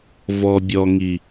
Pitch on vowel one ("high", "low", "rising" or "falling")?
low